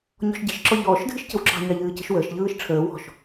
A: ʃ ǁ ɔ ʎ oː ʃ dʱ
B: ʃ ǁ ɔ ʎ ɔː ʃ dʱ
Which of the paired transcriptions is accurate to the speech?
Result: B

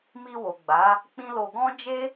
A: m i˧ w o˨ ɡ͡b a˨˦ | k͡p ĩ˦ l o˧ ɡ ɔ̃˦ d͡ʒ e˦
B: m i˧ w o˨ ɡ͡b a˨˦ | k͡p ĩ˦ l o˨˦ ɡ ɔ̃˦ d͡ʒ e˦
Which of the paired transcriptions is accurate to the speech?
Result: A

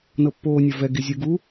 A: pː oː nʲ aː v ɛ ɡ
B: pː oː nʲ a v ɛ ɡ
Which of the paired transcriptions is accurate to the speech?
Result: B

